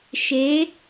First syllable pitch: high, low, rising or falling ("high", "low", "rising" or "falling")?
rising